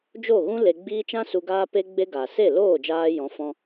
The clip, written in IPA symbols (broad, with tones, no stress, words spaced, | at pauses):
d͡ʒo˦˨ɣũ˦ le˧ ɡ͡biː˦ t͡ʃã˦ su˧ɡaː˦pe˦ ɡ͡be˦ ɡa˨se˦˨ loː˦˨d͡ʒaː˧jɔ̃˨˦ fɔ̃˧